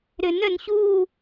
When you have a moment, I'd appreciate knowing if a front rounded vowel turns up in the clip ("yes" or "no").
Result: yes